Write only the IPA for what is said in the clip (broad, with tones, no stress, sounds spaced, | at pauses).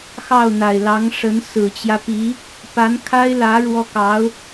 x ɑ˥˩ ʊ̯ n̪ a˨˩ ɪ̯ l ɑ˧˥ ŋ ʂ ə˧˥ n s ɹ̩˨˩ t͡ɕ j ä˦ p i˧˥ | p a˧˥ n kʰ a˥ ɪ̯ l ä˧˥ ɻ w ɔ˥ k ɑ˧˥ ʊ̯